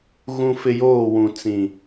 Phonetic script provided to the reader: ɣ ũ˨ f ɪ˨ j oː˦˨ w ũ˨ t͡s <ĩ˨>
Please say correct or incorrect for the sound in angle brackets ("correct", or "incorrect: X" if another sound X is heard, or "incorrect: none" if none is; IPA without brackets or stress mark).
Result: correct